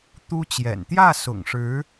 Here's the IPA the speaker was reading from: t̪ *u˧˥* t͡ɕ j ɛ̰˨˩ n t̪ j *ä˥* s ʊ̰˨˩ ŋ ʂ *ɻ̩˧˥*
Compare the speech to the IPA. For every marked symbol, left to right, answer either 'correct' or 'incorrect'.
incorrect: u˥, incorrect: ä˥˩, correct

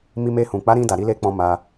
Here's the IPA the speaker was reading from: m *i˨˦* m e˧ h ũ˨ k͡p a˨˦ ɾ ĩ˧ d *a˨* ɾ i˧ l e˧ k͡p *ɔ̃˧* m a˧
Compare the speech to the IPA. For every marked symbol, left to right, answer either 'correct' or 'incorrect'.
incorrect: i˧, correct, correct

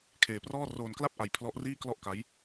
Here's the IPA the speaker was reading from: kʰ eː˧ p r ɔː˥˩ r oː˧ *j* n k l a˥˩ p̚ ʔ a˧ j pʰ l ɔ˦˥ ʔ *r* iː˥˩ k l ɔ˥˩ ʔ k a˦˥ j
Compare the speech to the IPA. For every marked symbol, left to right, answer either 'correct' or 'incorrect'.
incorrect: none, correct

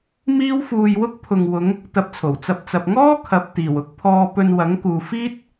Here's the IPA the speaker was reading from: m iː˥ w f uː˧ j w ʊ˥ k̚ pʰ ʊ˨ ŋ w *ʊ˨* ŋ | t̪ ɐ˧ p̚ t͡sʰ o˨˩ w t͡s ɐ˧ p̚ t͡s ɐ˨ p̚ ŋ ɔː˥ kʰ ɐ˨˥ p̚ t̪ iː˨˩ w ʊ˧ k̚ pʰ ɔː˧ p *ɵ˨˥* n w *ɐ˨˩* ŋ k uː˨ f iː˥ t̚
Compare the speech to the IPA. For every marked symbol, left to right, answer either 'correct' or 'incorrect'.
incorrect: ʊ˨˧, incorrect: ɵ˧, incorrect: ɐ˨˥

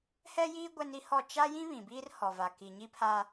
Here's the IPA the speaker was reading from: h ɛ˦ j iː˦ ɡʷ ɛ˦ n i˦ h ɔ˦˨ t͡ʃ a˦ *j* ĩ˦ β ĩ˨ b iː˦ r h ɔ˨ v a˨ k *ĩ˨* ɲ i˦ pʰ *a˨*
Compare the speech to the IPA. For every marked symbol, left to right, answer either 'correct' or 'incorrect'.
correct, incorrect: i˨, incorrect: a˦

